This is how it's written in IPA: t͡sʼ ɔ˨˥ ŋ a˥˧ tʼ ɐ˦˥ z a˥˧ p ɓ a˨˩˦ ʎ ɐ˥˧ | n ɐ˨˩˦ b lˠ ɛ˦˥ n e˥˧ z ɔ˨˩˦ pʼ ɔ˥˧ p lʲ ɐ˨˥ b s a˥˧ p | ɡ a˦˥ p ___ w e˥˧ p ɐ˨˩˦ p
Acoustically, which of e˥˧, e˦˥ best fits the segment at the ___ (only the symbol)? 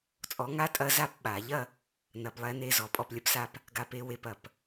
e˦˥